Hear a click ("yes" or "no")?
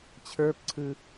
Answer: yes